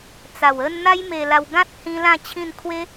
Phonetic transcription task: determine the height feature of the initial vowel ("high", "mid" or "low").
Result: low